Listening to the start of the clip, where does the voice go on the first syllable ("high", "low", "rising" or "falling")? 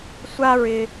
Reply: high